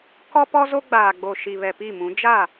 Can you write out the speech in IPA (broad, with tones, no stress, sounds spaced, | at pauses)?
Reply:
k ɔ˦ p ɔ˦ z o˦ ɡ͡b aː˨ ɡ͡b o˨ ʃ i˨ β ɛ˨ p i˦˨ m ũ˨˦ d͡ʒ a˦˨